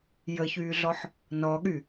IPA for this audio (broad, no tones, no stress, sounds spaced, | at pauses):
j ə ç yː ɮ ɔ ħ | n ɔ ɠ y